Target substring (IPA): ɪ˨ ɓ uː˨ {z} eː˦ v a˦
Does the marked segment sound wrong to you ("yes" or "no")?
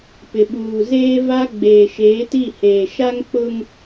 no